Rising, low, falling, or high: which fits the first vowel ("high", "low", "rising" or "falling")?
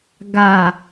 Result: low